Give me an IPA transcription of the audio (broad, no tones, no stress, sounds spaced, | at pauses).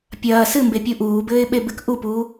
pʲ ɐː s ɨ m b e pʲ u ʔ uː b ɘː ɪ̯ ɓ e b ɨ k ʔ u p uː